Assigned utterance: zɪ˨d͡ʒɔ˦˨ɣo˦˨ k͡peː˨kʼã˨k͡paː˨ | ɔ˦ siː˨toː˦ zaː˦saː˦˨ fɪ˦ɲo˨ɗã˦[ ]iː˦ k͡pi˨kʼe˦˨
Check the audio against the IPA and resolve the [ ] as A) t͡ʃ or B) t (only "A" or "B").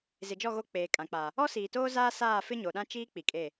A